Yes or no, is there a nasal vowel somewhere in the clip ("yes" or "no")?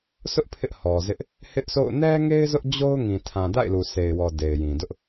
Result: yes